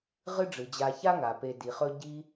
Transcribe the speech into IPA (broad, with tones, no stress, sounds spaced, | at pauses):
ʁ ɨ˦ ɖ͡ʐ ɨ˩ d͡ʑ a˨ ç a˥ ŋ a˩ p e˨ d i˩ χ ɵ˦ ɟ i˦